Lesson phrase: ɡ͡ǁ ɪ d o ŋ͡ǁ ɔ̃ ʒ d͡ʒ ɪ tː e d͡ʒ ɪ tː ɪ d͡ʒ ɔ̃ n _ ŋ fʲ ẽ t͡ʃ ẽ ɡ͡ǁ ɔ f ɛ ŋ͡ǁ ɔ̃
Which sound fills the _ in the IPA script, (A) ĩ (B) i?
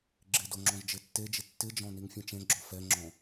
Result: B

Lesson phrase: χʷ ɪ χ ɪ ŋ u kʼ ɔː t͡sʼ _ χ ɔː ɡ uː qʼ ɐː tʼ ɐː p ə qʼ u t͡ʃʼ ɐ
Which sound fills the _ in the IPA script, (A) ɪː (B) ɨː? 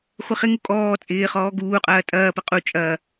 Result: A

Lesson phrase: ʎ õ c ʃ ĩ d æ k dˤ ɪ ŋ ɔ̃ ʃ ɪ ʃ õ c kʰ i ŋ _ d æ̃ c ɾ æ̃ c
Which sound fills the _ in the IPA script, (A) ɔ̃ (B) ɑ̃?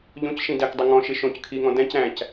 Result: A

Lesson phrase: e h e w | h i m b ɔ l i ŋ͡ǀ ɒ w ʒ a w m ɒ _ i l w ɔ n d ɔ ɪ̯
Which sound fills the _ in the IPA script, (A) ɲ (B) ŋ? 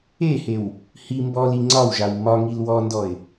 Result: B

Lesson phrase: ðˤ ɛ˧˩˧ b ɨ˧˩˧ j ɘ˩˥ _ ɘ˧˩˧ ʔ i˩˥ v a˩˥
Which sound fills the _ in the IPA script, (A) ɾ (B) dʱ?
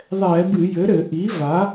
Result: A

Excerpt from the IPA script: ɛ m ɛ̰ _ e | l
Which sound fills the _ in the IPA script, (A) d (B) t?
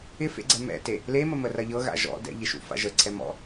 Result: B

